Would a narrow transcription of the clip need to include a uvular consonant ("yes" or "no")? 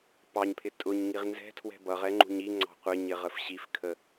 yes